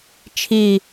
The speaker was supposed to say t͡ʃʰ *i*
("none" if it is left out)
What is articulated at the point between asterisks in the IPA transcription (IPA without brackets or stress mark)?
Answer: i